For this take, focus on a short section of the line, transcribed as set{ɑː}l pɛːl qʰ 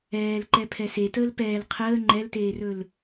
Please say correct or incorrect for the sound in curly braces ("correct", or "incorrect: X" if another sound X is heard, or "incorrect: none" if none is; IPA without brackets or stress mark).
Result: incorrect: əː